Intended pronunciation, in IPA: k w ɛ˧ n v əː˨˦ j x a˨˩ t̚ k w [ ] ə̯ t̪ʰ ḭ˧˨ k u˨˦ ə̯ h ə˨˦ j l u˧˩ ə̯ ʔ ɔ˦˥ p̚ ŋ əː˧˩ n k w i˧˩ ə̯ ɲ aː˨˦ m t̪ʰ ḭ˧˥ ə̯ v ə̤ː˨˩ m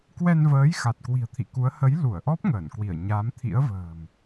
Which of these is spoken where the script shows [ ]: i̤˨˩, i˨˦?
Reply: i̤˨˩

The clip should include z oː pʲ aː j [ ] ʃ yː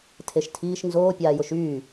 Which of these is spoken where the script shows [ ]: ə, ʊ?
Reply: ʊ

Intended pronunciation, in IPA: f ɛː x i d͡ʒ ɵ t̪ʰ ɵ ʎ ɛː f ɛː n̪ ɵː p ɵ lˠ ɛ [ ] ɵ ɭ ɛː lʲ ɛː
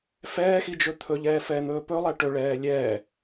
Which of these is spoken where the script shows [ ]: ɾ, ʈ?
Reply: ʈ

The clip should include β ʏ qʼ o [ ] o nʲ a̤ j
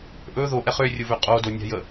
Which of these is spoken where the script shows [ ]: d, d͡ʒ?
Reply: d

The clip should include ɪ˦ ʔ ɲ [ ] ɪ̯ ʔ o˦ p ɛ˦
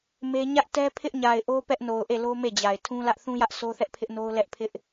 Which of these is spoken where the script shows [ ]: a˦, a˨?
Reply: a˨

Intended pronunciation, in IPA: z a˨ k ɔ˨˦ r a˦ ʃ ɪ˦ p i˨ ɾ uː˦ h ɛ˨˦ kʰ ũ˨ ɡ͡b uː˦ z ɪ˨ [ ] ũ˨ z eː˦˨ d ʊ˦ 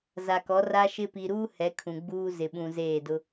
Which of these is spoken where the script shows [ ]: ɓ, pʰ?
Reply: ɓ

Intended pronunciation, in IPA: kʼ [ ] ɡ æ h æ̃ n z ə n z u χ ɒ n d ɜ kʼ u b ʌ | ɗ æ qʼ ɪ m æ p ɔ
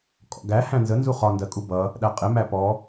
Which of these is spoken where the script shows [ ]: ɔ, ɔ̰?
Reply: ɔ̰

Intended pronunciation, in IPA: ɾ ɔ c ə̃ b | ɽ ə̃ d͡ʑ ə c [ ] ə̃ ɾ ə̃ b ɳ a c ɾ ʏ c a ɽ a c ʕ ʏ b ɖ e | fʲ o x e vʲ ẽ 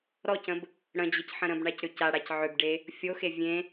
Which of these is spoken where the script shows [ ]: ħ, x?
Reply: ħ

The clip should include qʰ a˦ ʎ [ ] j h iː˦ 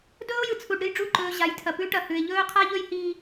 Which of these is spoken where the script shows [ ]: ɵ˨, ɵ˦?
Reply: ɵ˦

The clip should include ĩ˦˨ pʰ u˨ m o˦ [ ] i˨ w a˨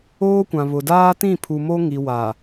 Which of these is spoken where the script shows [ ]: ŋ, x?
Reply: ŋ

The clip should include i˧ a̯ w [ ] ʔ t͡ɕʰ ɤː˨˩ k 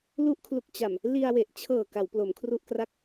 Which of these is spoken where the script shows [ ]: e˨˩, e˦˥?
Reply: e˨˩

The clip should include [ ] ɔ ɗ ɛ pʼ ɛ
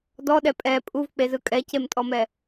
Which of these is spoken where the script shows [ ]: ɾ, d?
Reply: d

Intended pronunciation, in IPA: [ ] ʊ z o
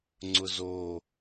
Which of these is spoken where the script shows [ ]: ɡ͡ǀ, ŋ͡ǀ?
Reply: ŋ͡ǀ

